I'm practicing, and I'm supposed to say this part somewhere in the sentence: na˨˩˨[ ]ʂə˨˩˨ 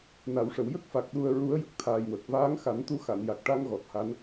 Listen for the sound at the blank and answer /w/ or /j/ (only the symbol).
w